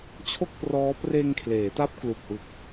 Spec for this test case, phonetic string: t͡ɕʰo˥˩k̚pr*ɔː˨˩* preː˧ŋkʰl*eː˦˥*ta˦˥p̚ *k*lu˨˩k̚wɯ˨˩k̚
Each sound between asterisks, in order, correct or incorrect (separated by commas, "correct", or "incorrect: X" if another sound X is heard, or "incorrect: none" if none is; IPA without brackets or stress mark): incorrect: ɔː˦˥, incorrect: eː˩˦, correct